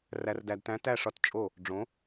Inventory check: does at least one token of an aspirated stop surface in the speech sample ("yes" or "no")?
no